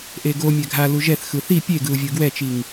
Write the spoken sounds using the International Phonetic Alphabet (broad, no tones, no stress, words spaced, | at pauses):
ʔeɡo mʲɛɡʱa luʒɛθ xɯθi pʲeɡɯu̯ vʲɯɡwɛt͡ʃiŋ